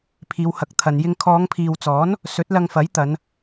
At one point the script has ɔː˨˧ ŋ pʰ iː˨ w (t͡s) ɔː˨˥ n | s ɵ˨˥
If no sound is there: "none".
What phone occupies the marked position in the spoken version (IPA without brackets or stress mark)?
t͡s